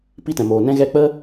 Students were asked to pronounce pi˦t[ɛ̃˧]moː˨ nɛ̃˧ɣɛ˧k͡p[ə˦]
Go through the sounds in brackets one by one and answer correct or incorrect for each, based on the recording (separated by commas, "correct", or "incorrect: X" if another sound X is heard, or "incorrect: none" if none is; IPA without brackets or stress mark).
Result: incorrect: ɛ̃˨, correct